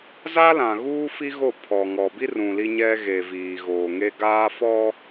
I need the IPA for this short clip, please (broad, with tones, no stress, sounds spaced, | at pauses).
z a˦ l ã˨ ɣ uː˦ f i˦ ɣ o˦˨ pʰ ɔ˨ ŋ ɔ˨ b i˦ r ũ˨ l i˦ ɲ ɛ˦ ɣ e˨ v iː˨ ɣ oː˨ ŋ e˦ ɡ aː˦ f ɔ˦